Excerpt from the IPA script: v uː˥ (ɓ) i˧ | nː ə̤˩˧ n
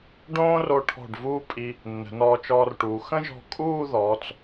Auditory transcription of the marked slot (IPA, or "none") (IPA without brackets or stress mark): pʼ